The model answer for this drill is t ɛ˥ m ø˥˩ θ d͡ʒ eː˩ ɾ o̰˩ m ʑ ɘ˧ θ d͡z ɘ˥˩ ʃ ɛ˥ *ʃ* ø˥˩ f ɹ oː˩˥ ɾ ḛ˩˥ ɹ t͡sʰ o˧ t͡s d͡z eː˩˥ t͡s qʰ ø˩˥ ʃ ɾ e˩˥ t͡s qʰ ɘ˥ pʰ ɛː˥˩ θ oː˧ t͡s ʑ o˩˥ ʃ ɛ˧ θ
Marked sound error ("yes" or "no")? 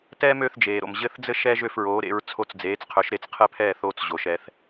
yes